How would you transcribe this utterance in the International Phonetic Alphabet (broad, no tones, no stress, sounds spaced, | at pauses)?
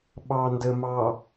ɓ ɑː n d ə m ɑ